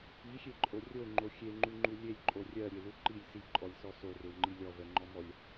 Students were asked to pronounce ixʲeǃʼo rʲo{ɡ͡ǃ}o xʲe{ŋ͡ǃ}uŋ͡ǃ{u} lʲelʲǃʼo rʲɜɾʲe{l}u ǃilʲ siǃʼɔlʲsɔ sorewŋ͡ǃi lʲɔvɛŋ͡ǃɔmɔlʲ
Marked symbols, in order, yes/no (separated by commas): no, yes, yes, yes